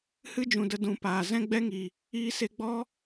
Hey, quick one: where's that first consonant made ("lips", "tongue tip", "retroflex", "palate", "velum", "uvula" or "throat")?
throat